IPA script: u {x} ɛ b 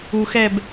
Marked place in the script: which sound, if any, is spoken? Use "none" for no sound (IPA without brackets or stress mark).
x